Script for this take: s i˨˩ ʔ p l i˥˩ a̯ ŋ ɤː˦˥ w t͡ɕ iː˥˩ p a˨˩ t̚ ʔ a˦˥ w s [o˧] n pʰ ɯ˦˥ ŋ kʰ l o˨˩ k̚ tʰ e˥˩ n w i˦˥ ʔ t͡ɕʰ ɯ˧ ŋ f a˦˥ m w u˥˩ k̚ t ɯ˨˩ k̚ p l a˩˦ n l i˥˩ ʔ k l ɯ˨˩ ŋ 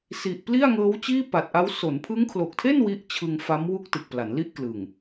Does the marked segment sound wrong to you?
yes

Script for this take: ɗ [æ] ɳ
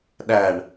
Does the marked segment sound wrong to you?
no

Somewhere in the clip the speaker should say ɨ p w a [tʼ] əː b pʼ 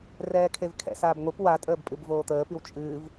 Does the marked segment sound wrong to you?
no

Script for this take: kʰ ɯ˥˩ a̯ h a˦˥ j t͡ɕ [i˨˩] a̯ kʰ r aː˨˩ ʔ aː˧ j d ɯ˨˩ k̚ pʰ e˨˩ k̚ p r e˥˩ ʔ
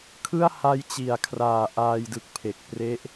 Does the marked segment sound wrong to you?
no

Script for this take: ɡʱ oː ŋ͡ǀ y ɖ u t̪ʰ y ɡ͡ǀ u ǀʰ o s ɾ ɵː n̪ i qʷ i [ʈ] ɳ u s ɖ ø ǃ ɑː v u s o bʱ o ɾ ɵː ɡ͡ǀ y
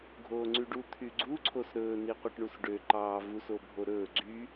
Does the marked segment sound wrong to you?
no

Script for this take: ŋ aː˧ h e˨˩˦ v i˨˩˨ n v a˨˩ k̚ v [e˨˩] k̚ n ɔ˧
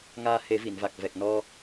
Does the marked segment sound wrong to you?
yes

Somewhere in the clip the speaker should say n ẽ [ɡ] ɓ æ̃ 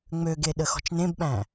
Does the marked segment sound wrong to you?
yes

